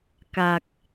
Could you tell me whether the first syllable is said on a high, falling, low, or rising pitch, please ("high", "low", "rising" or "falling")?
low